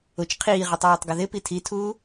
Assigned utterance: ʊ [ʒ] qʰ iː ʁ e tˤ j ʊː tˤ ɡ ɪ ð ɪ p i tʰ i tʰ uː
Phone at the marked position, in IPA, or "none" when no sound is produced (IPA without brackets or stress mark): t͡ʃ